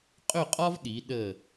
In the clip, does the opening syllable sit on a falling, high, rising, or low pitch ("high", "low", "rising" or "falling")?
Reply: falling